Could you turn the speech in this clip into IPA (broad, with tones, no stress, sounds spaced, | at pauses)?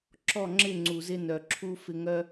ǁ ɔ˦˨ ŋ͡ǁ ɪ˦˨ ŋ͡ǀ u˨ z ɪ˧ n œ˨ ǁʰ u˧ f ɪ˧ ŋ œ˦